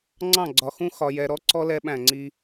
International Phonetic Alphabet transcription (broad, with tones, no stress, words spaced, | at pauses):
ŋ͡ǀɑ̃˦˨ɡ͡ǀɒ˨xũ˦ xɒ˨jɛ˨ɾɔ˦ǀɔ˦ lɛ˦ɓæ̃˦˨ŋ͡ǀi˦